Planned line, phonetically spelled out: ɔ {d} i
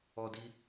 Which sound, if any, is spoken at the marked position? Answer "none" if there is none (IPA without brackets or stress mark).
d